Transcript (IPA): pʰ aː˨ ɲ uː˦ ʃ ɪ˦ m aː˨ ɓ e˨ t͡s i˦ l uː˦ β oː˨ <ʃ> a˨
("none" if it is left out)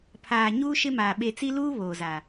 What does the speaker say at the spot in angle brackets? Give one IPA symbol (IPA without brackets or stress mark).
z